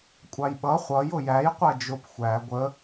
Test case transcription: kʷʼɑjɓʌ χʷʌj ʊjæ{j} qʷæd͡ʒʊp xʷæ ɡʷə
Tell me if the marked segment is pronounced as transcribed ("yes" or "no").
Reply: yes